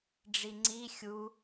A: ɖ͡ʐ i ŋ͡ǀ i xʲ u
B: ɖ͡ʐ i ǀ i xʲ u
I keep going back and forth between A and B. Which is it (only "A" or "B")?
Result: A